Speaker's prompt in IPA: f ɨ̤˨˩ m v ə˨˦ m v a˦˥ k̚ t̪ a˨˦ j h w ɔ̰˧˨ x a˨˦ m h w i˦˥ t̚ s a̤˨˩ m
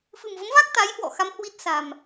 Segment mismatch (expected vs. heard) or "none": none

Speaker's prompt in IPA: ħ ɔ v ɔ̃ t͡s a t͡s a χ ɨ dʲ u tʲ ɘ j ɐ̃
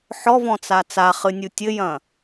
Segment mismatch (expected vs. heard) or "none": dʲ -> nʲ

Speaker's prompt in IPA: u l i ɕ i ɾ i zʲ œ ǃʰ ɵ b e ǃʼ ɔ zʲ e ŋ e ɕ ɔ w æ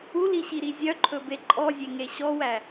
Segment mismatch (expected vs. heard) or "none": none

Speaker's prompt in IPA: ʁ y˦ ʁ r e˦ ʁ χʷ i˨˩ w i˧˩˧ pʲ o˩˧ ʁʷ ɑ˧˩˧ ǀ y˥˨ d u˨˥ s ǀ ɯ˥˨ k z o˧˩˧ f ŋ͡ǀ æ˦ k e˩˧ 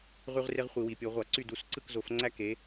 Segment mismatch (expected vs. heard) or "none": none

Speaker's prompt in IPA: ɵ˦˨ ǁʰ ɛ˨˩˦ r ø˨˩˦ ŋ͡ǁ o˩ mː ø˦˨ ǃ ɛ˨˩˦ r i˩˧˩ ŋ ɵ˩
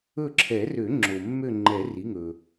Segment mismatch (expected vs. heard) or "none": ǃ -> ŋ͡ǃ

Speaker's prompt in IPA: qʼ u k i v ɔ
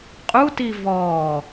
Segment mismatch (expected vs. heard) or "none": k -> t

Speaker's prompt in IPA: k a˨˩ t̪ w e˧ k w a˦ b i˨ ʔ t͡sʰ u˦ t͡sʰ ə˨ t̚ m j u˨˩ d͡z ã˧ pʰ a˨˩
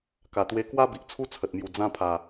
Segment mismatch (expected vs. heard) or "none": none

